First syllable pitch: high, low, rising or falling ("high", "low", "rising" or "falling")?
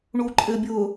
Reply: low